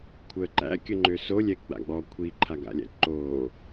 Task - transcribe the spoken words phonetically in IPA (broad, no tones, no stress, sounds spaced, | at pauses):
kʷʰ əː ǃ æ̰ kʲ ə ŋ͡ǃ ø s o lʲ ɛ ɡ͡b a̰ ɡ͡b ɔ kʷʰ i ǃʰ a ɡ a̰ lʲ æ̰ ǃ oː